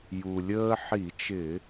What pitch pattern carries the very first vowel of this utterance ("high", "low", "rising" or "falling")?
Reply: low